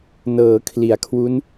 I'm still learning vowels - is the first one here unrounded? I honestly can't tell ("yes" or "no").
yes